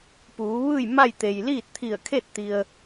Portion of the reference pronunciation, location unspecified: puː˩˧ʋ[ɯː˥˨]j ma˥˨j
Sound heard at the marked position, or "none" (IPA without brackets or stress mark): ɯː˥˨